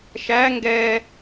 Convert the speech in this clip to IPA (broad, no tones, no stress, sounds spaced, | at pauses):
ʃ æ ŋ ɡ ɛ